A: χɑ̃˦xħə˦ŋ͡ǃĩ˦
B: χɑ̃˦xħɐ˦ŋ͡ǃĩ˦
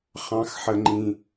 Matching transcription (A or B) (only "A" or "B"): A